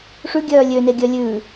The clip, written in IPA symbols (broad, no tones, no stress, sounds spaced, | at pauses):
ʂ ʉ ɡʲ œː lʲ ø n e ɡʲ œ lʲ ʉ